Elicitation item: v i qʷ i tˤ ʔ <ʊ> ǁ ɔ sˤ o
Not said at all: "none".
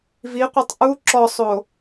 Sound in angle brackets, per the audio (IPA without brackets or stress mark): u